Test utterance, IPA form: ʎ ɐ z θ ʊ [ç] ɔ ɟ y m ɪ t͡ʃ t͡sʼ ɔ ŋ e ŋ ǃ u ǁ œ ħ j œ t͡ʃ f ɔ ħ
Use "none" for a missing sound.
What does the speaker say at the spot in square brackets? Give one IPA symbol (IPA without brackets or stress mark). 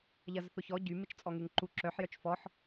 ç